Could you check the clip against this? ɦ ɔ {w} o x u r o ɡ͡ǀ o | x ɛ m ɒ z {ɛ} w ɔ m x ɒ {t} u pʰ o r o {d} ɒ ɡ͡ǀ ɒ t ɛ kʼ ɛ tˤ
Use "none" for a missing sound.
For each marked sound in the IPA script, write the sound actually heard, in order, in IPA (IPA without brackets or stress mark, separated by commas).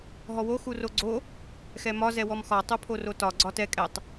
w, ɛ, tˤ, t